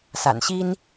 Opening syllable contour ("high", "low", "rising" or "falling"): low